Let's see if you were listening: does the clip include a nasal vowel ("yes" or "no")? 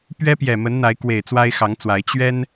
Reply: no